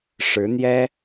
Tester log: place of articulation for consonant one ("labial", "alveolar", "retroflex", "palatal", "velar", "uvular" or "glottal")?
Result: retroflex